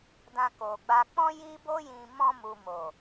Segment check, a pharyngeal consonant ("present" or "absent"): absent